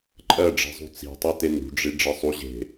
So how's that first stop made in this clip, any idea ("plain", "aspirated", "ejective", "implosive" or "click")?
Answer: click